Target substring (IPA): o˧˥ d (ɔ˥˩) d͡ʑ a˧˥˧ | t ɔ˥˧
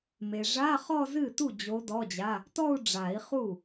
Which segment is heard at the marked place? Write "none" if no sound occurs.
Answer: ɔ˧˥˧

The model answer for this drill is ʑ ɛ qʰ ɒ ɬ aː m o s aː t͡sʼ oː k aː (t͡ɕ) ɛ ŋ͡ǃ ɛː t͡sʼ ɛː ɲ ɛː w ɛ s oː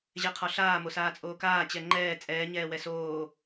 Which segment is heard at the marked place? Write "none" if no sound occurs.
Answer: t͡ɕ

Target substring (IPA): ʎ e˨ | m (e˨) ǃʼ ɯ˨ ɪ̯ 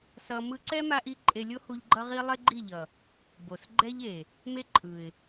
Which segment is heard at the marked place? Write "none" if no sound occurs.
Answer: e˦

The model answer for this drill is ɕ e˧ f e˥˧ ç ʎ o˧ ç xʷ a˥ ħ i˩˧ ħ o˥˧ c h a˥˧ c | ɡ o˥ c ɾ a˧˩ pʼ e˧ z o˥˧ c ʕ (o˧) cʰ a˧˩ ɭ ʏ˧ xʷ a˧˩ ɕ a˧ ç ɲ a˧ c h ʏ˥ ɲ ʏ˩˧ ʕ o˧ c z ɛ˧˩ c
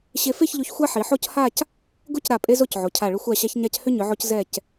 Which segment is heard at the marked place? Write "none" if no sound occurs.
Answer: o˩˧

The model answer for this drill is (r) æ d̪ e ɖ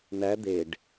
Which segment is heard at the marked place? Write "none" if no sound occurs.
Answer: n̪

